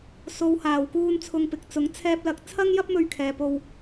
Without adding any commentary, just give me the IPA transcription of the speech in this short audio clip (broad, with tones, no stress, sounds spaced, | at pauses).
s o˨˧ w h aː˨˩ w k uː˧ n t͡sʰ ʊ˧ ŋ p ɪ˨ k̚ t͡s ʊ˨˥ ŋ t͡sʰ ɛː˧ p̚ l ɐ˧ k̚ t͡sʰ ɐ˥ ŋ j ɐ˥ p̚ m ɵ˧ ɥ kʰ ɛː˨ p o˧ w